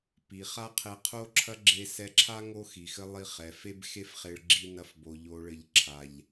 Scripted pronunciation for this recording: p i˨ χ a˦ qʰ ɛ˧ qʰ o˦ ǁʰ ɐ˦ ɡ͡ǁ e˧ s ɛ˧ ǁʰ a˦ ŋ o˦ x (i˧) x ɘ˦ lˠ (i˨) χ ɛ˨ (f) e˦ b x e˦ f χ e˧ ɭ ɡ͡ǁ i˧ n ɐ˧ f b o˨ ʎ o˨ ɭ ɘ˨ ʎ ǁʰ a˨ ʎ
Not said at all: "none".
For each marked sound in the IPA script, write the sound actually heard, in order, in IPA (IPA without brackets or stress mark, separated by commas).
i˨, i˧, f